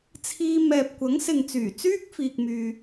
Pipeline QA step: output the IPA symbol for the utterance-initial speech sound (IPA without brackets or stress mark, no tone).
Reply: t͡sʰ